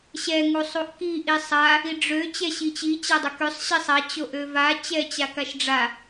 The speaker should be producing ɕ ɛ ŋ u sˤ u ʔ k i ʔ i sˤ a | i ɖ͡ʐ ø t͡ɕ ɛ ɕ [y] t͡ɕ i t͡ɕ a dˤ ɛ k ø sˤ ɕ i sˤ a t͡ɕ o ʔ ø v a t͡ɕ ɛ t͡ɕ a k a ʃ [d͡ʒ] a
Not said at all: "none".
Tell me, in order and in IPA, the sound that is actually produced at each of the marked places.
i, ɖ͡ʐ

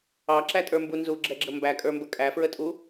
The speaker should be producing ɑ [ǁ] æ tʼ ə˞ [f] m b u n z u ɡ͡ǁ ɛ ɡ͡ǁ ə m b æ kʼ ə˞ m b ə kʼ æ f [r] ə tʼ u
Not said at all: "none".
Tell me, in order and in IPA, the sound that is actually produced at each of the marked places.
ǁ, none, ɹ

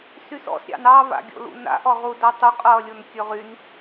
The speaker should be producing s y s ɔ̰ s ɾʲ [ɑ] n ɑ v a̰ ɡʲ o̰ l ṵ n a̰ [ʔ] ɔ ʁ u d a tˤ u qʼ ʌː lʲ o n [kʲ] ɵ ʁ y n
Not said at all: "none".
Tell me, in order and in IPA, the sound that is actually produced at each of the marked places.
ɑ̰, ʔ, kʲ

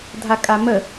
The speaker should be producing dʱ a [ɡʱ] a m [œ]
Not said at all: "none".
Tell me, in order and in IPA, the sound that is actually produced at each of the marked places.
kʼ, ə

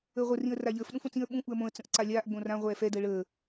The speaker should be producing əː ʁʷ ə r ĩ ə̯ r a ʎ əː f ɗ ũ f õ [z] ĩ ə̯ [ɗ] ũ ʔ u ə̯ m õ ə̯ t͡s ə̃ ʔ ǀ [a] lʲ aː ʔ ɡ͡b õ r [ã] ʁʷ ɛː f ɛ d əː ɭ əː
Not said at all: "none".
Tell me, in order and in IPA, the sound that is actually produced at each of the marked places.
t͡s, ɓ, a, ã

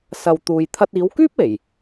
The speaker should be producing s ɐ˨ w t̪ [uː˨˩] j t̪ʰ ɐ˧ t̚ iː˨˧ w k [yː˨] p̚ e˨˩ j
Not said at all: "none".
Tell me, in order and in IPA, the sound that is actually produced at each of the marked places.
uː˨, yː˥

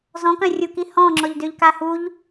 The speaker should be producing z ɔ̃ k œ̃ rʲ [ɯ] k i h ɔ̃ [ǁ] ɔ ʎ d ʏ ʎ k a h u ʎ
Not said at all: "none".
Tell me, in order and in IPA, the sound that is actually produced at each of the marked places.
u, ŋ͡ǁ

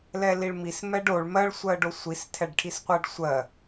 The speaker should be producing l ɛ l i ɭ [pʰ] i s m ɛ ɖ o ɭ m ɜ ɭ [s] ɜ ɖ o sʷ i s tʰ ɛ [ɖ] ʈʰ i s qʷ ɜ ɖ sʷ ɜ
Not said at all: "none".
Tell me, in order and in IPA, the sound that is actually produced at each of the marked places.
m, sʷ, ɖ

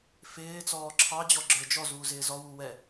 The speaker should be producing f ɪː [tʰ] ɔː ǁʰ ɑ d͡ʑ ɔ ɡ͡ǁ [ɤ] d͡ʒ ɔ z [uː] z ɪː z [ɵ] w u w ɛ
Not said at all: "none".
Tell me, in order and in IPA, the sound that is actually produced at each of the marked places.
t͡s, ə˞, uː, ɔ

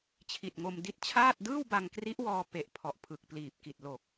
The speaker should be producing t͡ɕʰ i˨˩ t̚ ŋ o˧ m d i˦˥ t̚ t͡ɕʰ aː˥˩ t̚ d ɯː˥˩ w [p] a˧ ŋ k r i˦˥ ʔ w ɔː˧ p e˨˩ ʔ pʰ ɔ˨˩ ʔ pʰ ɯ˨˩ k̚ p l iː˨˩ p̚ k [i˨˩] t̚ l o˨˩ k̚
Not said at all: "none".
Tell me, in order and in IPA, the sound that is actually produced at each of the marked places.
b, i˨˩

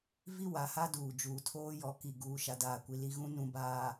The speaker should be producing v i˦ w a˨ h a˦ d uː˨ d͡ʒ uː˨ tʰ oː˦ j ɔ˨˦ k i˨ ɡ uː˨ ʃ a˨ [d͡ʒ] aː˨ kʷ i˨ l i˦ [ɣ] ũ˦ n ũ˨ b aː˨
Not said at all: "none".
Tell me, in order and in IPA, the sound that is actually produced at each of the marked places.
d, ɣ

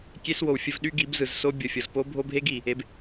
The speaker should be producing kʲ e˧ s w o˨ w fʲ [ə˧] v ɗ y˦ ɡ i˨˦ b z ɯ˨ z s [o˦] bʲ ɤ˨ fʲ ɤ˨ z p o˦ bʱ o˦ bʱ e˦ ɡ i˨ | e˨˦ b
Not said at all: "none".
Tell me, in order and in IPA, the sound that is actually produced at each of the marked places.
ə˧, o˦

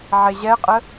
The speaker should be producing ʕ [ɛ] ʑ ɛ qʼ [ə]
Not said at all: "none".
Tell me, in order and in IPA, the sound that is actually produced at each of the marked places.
e, ə

